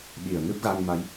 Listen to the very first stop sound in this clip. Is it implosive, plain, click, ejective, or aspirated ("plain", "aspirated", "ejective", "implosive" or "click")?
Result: implosive